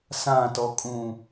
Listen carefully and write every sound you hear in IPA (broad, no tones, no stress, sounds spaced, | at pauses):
s ã t ɔ kʼ ũ